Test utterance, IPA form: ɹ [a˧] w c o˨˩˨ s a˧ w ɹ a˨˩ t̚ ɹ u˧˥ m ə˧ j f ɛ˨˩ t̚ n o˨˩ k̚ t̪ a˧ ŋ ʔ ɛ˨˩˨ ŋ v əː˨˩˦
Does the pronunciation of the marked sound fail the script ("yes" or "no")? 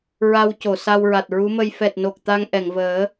no